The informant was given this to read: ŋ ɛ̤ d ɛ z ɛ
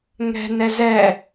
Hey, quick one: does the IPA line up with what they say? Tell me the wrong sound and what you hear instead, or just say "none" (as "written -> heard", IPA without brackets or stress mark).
d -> n